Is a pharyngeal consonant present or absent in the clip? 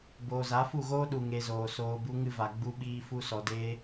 absent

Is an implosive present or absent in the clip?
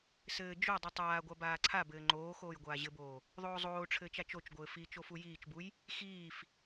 absent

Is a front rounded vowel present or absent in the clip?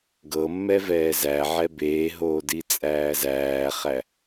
absent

